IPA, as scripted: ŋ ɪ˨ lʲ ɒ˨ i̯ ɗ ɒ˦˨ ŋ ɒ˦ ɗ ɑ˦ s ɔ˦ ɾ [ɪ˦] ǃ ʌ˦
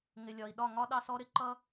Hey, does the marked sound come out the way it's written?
no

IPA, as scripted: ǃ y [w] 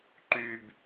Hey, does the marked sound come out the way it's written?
no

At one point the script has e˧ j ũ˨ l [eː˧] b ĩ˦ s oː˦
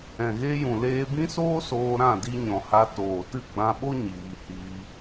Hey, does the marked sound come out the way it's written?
yes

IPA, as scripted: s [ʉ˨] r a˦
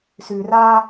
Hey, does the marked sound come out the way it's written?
yes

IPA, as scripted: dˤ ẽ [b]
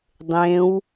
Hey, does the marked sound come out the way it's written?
no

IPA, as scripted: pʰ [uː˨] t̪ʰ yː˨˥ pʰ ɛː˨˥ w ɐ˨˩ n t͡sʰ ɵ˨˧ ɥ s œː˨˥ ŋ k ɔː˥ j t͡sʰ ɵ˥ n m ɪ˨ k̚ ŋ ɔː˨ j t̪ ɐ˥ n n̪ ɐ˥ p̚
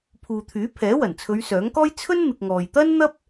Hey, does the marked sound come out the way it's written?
yes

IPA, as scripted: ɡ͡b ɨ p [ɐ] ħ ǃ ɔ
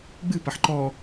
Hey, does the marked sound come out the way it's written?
yes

